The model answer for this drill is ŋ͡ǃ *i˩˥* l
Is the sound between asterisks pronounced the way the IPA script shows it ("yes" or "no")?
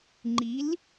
yes